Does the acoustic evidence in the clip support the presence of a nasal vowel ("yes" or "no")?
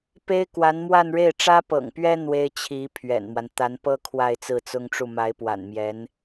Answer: no